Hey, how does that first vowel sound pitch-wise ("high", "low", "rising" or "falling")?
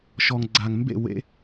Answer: low